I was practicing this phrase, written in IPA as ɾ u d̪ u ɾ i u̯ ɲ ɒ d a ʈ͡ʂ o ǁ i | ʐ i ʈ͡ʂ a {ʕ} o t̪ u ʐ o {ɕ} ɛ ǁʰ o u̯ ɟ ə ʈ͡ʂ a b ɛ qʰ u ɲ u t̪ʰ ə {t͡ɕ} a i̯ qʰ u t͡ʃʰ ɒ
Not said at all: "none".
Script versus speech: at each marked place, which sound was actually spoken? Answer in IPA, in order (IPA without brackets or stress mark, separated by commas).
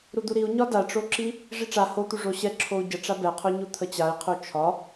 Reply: h, ɕ, t͡ɕ